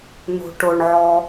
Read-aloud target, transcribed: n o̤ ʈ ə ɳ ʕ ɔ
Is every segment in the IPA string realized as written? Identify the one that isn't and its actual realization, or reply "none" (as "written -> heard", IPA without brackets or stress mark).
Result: ə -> ʊ